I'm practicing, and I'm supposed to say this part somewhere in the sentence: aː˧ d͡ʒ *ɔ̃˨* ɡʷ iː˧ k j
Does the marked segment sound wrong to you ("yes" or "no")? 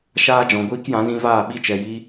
no